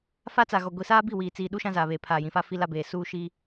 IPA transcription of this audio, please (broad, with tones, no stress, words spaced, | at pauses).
fa˦t͡sa˨ɣɔ˨ ɡʷi˨saː˦bi˦˨ wiː˨t͡siː˨ɗu˦ ʃã˦zaː˨βeː˨ pʰaː˨ jĩ˨fa˦ fi˦la˦beː˨ suː˦ʃi˦